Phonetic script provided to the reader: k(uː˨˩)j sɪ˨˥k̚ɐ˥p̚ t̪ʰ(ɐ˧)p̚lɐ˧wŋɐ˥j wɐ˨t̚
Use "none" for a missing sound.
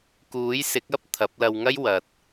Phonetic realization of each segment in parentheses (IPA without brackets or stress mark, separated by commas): uː˨˥, ɐ˨˥